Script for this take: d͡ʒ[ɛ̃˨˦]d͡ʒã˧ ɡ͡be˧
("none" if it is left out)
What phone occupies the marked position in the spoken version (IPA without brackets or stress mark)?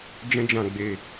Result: ɛ̃˦